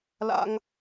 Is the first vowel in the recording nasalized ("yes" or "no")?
no